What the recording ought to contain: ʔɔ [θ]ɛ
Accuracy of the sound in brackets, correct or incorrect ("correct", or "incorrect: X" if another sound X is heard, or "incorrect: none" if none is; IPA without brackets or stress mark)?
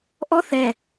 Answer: correct